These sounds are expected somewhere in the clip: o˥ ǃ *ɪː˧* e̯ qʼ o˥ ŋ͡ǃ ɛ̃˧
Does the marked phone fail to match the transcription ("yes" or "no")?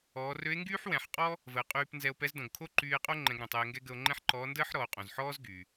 yes